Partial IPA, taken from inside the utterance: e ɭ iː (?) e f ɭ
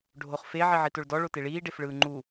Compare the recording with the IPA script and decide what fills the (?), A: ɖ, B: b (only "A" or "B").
A